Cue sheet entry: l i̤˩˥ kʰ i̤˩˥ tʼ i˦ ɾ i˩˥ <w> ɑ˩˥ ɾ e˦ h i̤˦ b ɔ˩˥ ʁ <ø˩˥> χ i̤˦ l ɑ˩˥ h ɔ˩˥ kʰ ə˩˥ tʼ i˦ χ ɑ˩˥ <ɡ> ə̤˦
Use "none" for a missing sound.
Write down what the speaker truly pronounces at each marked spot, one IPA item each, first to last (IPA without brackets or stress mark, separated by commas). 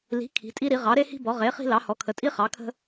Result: ʁ, e˩˥, kʰ